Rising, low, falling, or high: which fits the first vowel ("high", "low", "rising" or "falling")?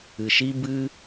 low